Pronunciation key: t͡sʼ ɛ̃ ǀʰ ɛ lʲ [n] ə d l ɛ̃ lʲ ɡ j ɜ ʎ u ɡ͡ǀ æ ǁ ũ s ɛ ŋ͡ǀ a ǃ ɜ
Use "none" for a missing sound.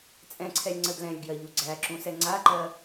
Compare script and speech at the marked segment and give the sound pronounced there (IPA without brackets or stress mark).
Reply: ŋ͡ǀ